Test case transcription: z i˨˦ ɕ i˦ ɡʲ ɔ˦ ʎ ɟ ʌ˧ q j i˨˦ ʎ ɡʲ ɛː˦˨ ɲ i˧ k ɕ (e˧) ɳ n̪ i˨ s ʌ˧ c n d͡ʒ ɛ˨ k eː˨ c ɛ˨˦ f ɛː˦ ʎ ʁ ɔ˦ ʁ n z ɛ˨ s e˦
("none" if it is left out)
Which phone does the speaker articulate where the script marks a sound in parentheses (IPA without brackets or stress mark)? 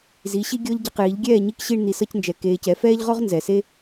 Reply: i˧